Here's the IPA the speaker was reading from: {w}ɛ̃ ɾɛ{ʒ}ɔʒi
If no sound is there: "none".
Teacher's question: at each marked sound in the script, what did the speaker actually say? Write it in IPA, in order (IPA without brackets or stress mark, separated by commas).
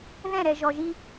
ð, ʒ